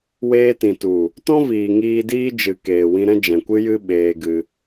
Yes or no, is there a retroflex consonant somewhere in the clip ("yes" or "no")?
no